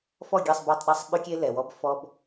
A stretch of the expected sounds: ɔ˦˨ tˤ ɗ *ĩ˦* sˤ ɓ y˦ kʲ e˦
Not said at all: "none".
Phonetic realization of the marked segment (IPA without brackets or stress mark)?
i˦